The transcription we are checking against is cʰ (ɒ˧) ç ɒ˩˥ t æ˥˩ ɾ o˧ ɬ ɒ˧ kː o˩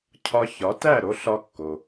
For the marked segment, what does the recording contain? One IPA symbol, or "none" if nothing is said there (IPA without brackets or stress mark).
ɒ˧